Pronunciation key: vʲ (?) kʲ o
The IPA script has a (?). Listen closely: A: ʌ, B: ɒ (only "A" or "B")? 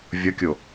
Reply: A